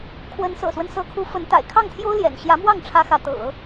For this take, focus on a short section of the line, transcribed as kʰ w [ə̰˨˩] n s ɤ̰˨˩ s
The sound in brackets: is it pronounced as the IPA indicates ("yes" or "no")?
no